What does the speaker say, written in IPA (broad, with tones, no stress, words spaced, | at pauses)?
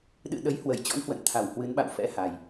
ɗɨ̰˧˨ ɗə˨˦jhwə˧˩jt͡ɕɔ̰˧˥n hwə̰˧˨nt̪ʰa˧˩whwɨ˨˦nɓa̰˧˨w fɛ̰˧˥ha˨˩j